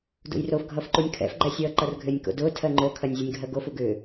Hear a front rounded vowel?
yes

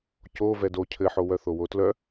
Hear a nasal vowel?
no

